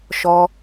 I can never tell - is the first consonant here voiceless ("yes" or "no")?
yes